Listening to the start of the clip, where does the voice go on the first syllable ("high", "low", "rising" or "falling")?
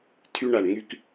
high